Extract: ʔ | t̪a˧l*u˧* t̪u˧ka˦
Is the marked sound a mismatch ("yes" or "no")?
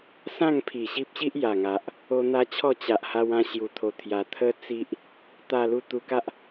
no